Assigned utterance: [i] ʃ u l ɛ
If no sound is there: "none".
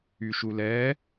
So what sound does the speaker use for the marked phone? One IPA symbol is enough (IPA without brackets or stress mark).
y